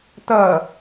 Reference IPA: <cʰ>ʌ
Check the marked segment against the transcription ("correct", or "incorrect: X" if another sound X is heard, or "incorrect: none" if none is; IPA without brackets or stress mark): incorrect: t̪